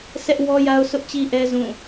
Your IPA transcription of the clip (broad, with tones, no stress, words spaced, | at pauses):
sʰɛ˦ʔ wɔ˦ja˦ʊ̯sʰʊ˦ʔ t͡ɕi˦ʔɛ˦ zũ˦˨